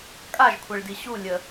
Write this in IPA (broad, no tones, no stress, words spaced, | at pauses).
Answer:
kʼaʒkʷʰɛɭdi ɕu lʲə